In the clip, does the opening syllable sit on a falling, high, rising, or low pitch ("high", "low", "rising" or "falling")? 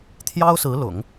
high